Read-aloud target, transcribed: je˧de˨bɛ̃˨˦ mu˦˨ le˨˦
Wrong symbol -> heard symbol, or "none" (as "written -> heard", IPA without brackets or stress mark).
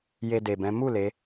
none